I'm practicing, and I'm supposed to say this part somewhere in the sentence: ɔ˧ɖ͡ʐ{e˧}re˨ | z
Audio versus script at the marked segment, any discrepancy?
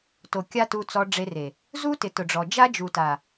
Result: no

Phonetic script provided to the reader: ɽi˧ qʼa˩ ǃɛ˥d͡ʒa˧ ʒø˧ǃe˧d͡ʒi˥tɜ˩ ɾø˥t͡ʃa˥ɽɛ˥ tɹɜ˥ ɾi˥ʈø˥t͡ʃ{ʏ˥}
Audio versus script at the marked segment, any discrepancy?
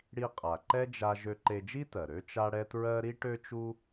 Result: yes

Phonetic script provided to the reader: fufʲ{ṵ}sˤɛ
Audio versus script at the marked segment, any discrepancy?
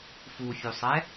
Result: yes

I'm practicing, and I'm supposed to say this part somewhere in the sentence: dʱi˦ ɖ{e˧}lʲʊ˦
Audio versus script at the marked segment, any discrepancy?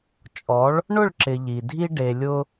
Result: no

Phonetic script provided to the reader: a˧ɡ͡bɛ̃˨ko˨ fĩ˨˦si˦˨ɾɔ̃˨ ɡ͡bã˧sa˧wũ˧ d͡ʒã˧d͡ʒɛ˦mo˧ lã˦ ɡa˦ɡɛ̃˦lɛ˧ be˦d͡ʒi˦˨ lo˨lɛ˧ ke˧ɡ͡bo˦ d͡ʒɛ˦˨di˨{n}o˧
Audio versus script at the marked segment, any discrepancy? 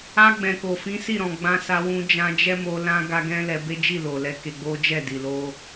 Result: yes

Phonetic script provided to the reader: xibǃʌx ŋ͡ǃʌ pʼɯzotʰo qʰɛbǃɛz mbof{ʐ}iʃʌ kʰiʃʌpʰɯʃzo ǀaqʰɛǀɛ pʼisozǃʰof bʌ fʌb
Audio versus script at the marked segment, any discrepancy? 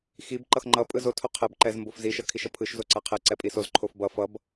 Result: yes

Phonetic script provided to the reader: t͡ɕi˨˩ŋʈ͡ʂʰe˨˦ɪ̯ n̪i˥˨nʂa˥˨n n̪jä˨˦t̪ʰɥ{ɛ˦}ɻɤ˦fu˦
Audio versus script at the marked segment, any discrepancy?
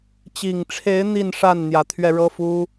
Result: yes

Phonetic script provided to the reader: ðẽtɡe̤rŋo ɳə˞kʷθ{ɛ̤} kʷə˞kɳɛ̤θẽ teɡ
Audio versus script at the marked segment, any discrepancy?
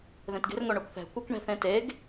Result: no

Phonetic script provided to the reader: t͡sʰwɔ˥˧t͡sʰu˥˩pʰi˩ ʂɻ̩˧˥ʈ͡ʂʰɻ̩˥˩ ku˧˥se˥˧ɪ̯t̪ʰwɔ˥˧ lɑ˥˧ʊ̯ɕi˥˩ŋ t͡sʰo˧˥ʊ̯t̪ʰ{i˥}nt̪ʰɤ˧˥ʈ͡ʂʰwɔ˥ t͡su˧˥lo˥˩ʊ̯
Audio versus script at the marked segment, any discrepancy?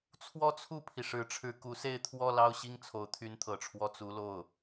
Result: yes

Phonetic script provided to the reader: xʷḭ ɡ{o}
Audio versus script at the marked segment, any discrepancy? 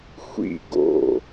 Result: yes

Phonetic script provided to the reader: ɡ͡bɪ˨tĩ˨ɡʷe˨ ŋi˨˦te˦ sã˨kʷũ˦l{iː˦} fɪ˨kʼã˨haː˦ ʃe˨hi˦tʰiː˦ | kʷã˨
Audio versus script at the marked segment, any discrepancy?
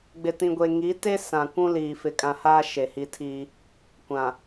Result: yes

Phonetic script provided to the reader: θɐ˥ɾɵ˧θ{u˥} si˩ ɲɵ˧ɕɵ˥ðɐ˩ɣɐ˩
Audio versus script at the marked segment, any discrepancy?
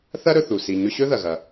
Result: yes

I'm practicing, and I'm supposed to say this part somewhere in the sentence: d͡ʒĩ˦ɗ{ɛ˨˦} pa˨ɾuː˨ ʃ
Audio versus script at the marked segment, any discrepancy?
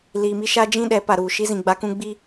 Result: no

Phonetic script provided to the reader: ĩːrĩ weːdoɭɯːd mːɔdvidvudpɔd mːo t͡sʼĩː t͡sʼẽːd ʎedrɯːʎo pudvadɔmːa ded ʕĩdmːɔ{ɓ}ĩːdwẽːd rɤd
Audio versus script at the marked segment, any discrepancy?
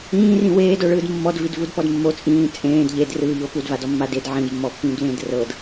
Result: yes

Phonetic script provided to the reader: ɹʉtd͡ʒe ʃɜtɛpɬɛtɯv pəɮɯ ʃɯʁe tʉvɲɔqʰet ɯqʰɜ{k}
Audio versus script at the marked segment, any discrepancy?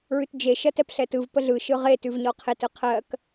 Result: no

